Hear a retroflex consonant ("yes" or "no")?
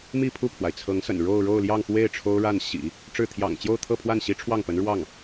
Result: yes